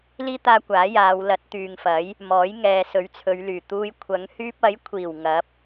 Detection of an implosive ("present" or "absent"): absent